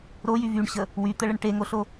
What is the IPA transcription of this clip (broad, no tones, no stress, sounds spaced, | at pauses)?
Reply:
ɾ o j y v y ɳ ɕ ə | w y t̪ ə ɭ ə ɳ ʈ e ŋ o ɬ o